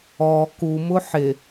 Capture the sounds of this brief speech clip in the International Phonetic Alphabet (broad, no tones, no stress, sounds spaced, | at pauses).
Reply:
ɔ k u m ʊ ħ ɪ